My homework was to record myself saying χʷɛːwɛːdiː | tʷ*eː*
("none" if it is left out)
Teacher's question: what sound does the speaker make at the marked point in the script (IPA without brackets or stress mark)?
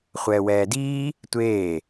eː